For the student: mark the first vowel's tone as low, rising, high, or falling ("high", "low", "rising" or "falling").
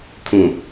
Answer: low